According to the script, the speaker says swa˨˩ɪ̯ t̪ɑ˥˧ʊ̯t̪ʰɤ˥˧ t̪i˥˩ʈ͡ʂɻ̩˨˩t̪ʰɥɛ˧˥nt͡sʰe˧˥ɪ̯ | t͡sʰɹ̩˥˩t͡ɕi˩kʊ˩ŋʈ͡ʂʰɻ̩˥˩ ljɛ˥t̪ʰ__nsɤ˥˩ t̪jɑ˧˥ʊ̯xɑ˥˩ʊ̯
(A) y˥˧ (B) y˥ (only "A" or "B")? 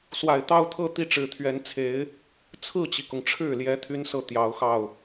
B